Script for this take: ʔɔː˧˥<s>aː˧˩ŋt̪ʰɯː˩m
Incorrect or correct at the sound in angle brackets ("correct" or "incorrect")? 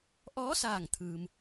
correct